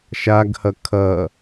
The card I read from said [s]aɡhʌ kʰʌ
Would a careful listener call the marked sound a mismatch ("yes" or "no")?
yes